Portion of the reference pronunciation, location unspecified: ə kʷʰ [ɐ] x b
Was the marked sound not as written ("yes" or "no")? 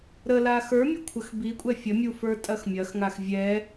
yes